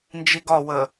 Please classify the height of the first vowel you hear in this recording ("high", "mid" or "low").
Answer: high